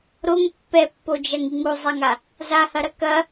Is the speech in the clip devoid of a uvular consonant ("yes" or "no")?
yes